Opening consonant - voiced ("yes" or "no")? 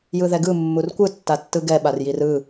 yes